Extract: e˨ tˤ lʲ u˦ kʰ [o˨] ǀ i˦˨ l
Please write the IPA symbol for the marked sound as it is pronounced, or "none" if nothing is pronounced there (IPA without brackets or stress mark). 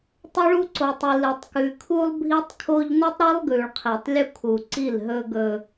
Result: u˨